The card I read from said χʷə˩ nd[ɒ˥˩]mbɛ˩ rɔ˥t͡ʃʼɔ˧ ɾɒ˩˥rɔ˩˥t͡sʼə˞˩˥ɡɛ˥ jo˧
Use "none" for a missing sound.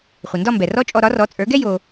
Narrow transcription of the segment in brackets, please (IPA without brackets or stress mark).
ɒ˥˩